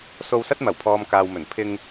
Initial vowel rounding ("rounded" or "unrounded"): rounded